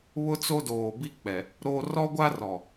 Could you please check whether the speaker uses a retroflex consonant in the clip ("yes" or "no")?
no